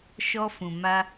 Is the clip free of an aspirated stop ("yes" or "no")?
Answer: yes